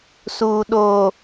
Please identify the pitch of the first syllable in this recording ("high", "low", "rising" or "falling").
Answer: low